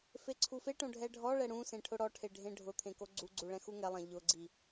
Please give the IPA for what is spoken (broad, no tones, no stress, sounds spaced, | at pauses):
f e ǀʰ u f e ʈ õ ɖʱ ɛ ɖʱ ɔ ɭ ɛ ɽ ũ s ẽ ʈʰ ʊ ɽ ɔ ʈʰ e ɖʱ ẽ ɖʱ ʊ t̪ʰ ẽ k o ɡ͡ǀ u ɡ͡ǀ u ɭ ɛ̃ x u ŋ ɛ lˠ ɛ̃ ʎ ʊ ɡ͡ǀ i